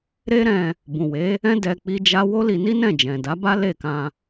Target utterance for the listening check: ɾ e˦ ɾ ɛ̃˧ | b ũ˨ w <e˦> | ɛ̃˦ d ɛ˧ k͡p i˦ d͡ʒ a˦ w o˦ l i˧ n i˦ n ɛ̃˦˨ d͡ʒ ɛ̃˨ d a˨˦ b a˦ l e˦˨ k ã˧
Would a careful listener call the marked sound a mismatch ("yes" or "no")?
yes